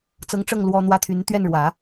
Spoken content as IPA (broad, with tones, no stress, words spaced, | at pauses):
t͡sɤ˧˥ŋʈ͡ʂɤ˥˩ŋ lwɔ˥n̪wä˥t̪ʰy˧˥n t̪ɥɛ˥˩nɻwä˨˩˦